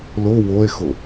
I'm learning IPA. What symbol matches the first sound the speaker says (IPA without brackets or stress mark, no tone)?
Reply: l